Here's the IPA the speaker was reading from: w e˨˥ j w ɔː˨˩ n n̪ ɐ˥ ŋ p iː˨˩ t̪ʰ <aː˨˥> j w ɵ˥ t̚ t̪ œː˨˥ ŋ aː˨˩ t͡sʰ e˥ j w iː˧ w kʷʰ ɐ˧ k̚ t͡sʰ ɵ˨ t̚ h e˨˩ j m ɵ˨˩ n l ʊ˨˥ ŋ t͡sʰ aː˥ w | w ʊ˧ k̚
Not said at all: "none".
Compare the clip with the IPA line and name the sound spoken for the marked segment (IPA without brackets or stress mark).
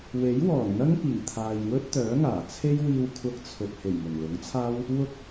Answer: aː˨